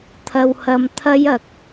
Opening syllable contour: low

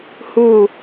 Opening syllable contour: falling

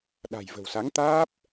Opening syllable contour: low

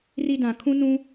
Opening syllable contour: high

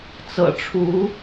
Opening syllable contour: low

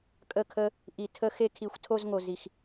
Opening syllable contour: falling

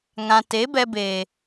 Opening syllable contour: low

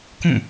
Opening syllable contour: falling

